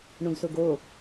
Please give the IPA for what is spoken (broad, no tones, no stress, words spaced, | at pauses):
ɳũɡsʊɡo